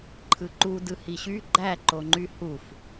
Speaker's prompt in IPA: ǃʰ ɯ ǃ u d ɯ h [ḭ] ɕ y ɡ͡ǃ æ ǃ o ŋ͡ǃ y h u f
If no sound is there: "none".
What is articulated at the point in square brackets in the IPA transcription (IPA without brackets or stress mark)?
i